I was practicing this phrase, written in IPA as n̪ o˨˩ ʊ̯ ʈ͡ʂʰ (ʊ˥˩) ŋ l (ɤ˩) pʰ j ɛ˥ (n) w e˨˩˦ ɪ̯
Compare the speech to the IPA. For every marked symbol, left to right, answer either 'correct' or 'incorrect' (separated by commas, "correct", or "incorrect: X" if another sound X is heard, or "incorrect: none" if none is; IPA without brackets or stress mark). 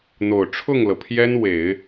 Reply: correct, correct, correct